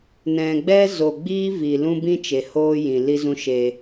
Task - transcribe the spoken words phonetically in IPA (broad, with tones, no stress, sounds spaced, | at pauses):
n ɛ̃˨ ɡ͡b ɛ˦ z o˨ ɡ͡b iː˦ v i˨ l ũ˦ b ĩ˦ t͡ʃ e˨ h oː˦ j ĩ˨ l i˦ z ũ˦ ʃ eː˧